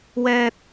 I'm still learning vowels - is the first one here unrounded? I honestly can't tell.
yes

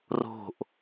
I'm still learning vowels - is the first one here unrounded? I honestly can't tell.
no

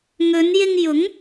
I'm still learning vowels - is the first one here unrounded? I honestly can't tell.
no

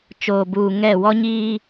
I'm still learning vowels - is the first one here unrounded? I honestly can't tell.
no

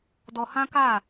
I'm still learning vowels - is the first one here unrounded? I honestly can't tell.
no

